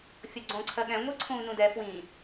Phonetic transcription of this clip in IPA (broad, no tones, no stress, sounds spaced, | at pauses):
fʲ ɤ ɡ͡ǀ õː ǀʰ ɜ ɠ ɛ̃ ŋʷ ɛ ǀʰ ũː n ũ d ɛ f w ĩ